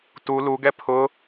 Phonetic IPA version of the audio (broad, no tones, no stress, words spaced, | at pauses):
tu luɡɛ pʰʊ